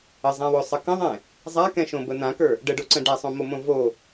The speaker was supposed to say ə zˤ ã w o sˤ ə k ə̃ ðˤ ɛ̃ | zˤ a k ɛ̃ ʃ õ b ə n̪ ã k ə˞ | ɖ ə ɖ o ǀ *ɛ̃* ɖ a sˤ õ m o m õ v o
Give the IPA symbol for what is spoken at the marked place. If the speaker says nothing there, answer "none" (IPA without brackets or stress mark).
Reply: ə̃